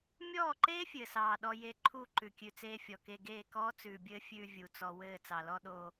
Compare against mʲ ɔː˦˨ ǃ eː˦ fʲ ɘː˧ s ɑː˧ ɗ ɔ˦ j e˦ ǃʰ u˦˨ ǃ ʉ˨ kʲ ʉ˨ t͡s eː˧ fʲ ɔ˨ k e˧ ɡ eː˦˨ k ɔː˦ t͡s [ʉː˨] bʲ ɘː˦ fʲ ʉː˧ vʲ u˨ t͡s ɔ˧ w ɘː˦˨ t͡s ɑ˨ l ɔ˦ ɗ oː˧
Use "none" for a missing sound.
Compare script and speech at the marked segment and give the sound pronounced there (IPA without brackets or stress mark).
ʉː˨